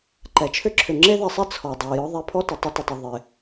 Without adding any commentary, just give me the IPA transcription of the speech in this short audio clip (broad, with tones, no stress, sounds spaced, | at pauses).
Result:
ǃ ɛ˨ t͡ʃʰ ʏ˦ ǁʰ ʏ˨ ŋ͡ǁ e˦ ð e˨ sˤ i˦ t͡sʰ ɔ˨ dˤ o˨ j ɔ˦ ðˤ e˦ pʰ ɔ˦ t ʏ˨ tˤ ʏ˦ t ɪ˨ tˤ o˨ ðˤ ɪ˨